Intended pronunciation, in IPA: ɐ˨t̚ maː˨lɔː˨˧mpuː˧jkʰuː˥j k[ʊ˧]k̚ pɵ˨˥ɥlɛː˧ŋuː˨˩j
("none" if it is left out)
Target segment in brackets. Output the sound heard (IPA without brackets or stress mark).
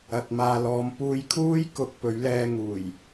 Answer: ʊ˨